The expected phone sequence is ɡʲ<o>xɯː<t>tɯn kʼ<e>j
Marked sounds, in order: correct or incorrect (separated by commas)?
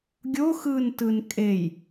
correct, incorrect, correct